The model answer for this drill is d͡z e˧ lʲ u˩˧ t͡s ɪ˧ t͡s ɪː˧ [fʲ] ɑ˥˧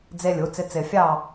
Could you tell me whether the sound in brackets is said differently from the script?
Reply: no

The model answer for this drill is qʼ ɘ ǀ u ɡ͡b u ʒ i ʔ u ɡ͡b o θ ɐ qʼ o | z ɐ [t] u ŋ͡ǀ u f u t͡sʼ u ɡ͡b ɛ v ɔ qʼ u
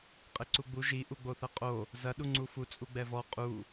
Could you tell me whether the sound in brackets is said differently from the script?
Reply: yes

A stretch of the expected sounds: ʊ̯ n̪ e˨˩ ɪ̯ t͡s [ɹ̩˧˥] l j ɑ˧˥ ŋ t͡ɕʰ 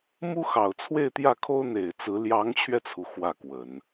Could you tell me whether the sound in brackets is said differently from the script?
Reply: no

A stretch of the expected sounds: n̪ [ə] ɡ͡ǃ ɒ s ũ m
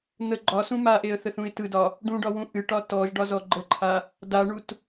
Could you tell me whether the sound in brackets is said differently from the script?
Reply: no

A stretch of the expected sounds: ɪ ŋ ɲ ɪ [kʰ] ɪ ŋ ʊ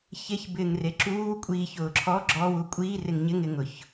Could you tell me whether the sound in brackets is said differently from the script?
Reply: yes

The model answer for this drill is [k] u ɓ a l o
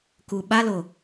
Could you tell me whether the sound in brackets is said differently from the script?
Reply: no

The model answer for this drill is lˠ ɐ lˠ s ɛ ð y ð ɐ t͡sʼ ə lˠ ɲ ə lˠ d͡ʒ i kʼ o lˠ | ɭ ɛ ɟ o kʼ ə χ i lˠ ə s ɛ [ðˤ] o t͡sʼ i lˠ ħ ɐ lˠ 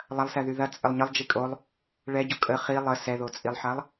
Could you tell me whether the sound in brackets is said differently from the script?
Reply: yes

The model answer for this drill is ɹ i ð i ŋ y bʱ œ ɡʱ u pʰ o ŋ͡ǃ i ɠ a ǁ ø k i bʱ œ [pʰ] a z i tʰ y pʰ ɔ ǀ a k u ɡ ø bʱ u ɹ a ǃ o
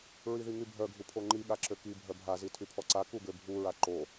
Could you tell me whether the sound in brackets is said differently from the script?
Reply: yes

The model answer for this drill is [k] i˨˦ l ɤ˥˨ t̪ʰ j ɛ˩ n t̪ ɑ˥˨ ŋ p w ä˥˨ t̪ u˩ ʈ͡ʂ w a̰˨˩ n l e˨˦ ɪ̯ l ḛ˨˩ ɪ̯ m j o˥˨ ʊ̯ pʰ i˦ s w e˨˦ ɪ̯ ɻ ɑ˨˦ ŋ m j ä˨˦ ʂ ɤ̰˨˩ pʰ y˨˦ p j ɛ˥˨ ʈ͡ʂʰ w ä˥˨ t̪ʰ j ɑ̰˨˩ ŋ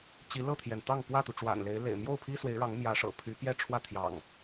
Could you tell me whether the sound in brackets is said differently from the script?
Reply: yes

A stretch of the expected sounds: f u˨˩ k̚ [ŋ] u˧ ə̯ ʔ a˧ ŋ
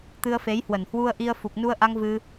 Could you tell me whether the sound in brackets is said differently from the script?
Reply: yes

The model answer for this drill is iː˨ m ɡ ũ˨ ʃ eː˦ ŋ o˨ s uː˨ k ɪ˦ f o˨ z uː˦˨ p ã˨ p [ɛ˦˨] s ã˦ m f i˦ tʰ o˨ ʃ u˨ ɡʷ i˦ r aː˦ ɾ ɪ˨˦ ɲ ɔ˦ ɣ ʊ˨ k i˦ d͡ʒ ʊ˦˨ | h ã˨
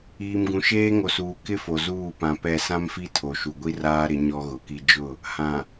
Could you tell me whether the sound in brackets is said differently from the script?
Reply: no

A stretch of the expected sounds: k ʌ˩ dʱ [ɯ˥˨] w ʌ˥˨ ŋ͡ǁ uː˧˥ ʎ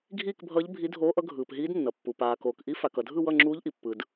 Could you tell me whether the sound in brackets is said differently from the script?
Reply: no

